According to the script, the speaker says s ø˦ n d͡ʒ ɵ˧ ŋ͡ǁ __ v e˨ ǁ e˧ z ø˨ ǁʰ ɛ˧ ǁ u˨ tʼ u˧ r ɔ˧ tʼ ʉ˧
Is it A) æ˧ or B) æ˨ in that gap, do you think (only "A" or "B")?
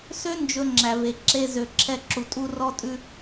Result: B